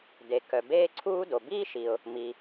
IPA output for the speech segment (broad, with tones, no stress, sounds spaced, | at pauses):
d e˩ k œ˩ b eː˥ ǀʰ uː˥ d o˩ b iː˥ ʃ i˩ ʊ̯ | m i˩